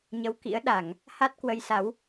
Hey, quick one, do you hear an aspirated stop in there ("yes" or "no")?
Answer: no